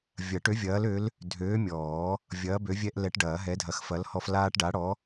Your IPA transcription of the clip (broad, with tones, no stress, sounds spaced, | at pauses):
vʲ ɐ˨˩˦ ʈ ø˨˥ vʲ ɐː˨˥ l ø˨˥ l | dʱ øː˨˥ mʲ ɔː˨˩˦ | vʲ ɐː˨˥ b ø˨˥ vʲ ɛ˦ ʔ l ɛ˨˥ ʈ ɖ ɐː˨˩˦ ɦ ɛ˨˥ dʱ ɐ˨˥ x f ɐ˨˥ l h ɔ˦ f l aː˦ ʈ ɖ a˨˥ ɽ ɔ˨˥